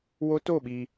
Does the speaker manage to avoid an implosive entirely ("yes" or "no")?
no